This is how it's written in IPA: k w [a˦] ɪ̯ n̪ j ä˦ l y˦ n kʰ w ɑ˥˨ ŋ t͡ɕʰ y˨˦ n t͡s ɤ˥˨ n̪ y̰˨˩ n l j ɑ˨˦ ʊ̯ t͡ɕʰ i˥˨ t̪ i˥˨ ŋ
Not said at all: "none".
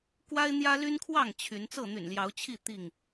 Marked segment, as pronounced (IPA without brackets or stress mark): a˦